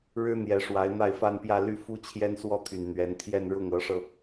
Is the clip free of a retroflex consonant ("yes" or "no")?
no